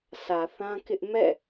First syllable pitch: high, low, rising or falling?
low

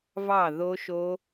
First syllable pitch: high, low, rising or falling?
falling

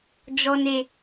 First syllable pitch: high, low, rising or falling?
low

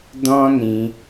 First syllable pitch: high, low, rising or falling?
high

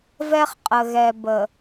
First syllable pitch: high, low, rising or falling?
high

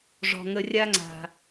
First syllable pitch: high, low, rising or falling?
low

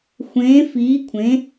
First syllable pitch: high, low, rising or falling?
rising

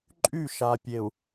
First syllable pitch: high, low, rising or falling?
falling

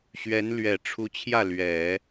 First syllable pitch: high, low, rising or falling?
rising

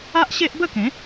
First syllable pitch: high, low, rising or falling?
high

